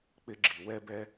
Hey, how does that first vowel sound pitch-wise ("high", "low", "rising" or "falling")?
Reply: high